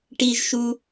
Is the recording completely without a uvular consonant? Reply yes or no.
yes